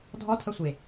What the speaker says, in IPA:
dʱ ɔ tʰ ɐ sʷ e

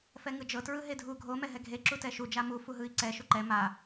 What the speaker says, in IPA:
f ɛ ŋ ɯ d͡ʒ ɤ t ɹ ɯ ɦ e dʱ u ɡʱ o m ɛ ɦ ɛ ɡʱ e ǁ u t ɛ ʃ u d͡ʒ a m u f u ɦ ɯ i̯ ǀ ɛ ʃ u ǃ ɛ m a

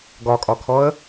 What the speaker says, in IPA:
ɡ ɒ kʼ ɒ kʰ ɔ ə̯

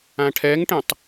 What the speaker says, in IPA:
ã ʈʰ ɛ ŋ ʈ ẽ tˤ

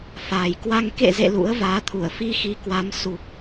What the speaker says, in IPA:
f aː˨˩ j k w a˧ ŋ k ḛ˧˨ z ḛ˧˨ l ṵ˧˥ ə̯ v aː˨˦ t̪ʰ u˧˩ ə̯ f i˧ x i˨˦ k w a˨˦ m s u˨˩ k̚

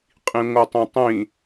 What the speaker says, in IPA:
qʼ ĩ ŋʷ ɯ tˤ ẽ tˤ ĩ

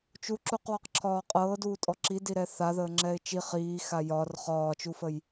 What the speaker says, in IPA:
t͡ʃ u ǁ u q w ɒ q ǁʰ ɒː qʼ ɤː d uː tʼ ɔ ǁ i d i ɾ ɛ θ a ð əː ŋ͡ǁ ɛ ɪ̯ t͡ʃ i χ iː x a j ɒ r χ ɒː t͡ʃ u f ə j

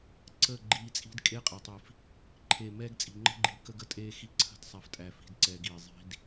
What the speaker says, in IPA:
ǀ əː˦˨ ɡ͡ǃ iː˧ t͡sʼ i̤˦ d kʼ eː˦ qʼ ɛ˨ tˤ i˨ f | ǃʰ e˨ m ɛː˧ ɡ t͡sʼ i̤˨ ŋ͡ǃ ə̤˦ ɡ͡ǃ iː˨˦ k ə˧ ɡ ə˧ tʼ eː˧ x i˦ ǀʰ ə̤˦ d sˤ a˧ f tʼ æ˧ f i̤˧ d ǀ ɛː˧ ɡ iː˨ zˤ i̤˦ d

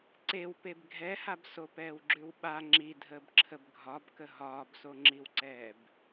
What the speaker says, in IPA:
ǀ e w p e b ɡʱ ɛ h a b s o p ɛː w ɡ͡ǁ ʉ w ɓ a ŋ͡ǁ i dʱ əː b ǁʰ ə b ɡʱ ɒ b k ə ɦ ɒː b s o ŋ͡ǁ i w ǀ ɛː b

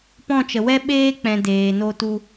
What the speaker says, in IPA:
p ɔ̃˦˨ t͡ʃ ə˨ w ɛ˦ ɓ eː˦ k͡p ɛ̃˨ d eː˨ n o˧ t u˧

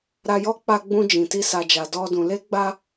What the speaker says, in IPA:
ɾ a˧ j ɔ˦ k͡p a˧ ɡ͡b ũ˧ d͡ʒ ĩ˨ t i˧ s a˨ d͡ʒ a˨ d ɔ˧ d ũ˨ l e˧ ɡ͡b a˧

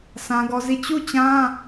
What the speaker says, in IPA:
s ã˦ ɡ ɔ˦ z i˦˨ t͡ɕ u˦˨ t͡ɕ ã˦

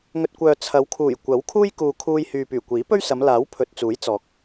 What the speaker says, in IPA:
ŋ ɵ˨ t̚ kʷ œː˨ t͡sʰ ɐ˨˧ w kʰ uː˨˩ j kʷ ɐ˨˥ w kʰ uː˥ j k uː˨ kʰ uː˧ j h yː˨ p yː˨˩ kʷ iː˨˥ p ɵ˥ ɥ s ɐ˨˧ m l aː˨˥ w pʰ ɵ˨ t̚ t͡s uː˨˥ j t͡s ɔː˨˥ k̚

